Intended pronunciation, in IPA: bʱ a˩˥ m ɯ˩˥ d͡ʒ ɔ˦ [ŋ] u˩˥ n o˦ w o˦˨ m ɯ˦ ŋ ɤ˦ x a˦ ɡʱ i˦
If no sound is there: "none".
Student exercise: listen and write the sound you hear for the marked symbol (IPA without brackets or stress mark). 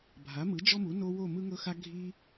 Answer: m